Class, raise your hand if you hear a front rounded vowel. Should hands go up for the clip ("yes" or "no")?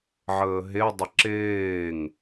no